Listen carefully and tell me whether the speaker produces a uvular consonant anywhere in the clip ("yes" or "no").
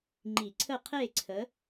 yes